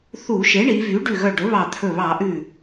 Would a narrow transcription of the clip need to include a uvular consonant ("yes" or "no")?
no